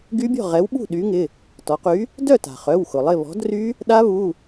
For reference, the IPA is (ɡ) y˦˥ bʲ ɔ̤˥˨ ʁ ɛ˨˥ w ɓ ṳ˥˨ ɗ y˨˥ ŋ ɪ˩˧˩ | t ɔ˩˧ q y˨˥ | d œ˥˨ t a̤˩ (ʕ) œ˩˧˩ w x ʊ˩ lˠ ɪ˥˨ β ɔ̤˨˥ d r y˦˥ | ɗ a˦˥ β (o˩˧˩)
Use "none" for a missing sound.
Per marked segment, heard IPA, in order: ɡ, χ, u˩˧˩

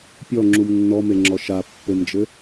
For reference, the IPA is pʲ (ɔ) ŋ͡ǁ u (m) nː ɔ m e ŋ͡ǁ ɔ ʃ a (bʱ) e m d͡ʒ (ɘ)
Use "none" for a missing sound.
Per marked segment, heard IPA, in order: ɔ, m, pː, ɘ

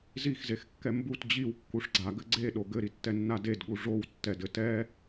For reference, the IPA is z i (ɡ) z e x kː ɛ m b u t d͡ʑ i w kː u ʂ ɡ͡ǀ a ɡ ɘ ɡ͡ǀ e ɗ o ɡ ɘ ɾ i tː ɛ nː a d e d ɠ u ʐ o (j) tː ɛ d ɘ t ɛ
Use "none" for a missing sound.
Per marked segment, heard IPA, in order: x, w

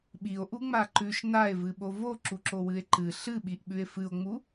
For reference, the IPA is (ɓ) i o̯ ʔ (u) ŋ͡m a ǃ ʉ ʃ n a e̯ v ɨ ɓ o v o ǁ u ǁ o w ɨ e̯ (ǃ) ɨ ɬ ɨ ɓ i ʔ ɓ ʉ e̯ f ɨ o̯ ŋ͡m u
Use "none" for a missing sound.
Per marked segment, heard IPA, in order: ɓ, u, ǃ

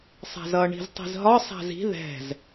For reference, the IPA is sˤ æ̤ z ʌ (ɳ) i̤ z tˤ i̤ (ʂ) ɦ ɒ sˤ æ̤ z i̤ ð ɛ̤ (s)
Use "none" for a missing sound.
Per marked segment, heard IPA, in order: ɳ, z, z

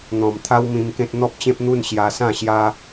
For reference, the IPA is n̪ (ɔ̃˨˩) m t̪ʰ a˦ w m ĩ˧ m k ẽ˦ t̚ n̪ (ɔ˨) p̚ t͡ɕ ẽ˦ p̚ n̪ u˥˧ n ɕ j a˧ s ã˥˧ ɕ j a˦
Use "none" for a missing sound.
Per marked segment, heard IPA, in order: ɔ̃˨˩, ɔ˦

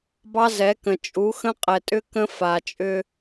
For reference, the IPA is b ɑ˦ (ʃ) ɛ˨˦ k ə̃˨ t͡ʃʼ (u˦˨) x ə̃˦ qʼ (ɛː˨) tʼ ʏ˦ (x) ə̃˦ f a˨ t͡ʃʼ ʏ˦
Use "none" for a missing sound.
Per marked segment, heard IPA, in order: z, u˨˦, ɛ˨, k

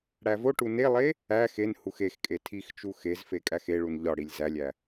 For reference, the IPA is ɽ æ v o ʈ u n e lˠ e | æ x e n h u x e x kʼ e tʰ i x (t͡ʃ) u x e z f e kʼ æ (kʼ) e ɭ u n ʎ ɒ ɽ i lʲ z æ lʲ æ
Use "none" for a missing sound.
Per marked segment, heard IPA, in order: t͡ʃ, x

